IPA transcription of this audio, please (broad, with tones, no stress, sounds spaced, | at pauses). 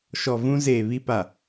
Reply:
ʃ ɔ˨ v ũ˦ z eː˨ β i˦ p a˨